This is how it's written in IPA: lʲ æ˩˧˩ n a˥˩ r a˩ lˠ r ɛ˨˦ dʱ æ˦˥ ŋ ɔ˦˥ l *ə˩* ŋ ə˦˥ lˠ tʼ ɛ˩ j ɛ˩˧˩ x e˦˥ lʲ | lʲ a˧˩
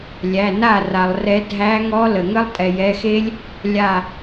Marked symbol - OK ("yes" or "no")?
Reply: yes